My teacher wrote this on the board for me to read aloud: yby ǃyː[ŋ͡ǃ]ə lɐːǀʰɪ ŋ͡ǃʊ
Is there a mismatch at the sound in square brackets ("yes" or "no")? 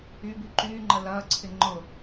no